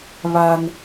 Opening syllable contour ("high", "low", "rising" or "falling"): high